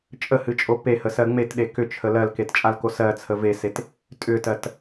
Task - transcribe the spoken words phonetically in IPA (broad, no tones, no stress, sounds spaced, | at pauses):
t͡ʃʼ ə h ɨ t͡ʃʼ o p e h ə s ɜ ŋ͡m e t ɗ e k ʏ t͡ʃʰ ə l ɜ l k e t t͡ʃʼ a l k o s ɜ t͡sʰ ə v e s e t | tʼ ʏ t ɜ t